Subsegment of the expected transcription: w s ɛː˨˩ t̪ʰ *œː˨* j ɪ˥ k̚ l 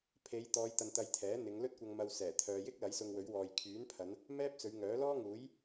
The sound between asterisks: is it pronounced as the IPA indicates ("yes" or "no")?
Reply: yes